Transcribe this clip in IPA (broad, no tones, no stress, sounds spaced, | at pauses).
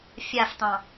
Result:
fʲ a f t̪ ɑ̃